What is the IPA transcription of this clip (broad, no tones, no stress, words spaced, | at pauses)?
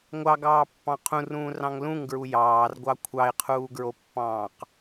ŋʷɑɡɑːpːɑ̃ qʰũrũːrɑ̃ŋ lũŋɡɹu jɑːrɡʷɑ kʷʰɑɪ̯qʰuːɡɹopːɑ̃ːq